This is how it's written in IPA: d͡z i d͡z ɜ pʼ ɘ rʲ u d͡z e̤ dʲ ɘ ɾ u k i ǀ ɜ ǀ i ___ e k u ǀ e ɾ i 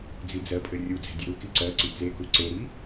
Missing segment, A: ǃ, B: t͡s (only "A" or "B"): B